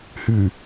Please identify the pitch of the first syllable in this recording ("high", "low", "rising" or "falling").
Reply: low